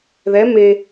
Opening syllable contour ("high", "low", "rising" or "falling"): rising